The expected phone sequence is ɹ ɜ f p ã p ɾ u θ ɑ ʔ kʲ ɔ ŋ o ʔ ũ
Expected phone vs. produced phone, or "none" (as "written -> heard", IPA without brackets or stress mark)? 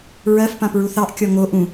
ɾ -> ɹ